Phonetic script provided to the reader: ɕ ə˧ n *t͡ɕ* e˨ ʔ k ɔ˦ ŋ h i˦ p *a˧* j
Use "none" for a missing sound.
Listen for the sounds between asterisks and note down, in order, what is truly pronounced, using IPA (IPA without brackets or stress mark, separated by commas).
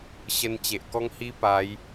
t͡ɕ, a˨˦